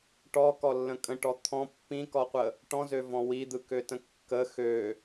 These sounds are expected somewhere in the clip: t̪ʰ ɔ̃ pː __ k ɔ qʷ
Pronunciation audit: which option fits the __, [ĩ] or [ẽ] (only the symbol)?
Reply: ĩ